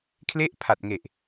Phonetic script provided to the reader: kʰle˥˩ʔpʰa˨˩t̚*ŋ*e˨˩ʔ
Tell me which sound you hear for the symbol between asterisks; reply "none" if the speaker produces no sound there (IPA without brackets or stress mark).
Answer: ŋ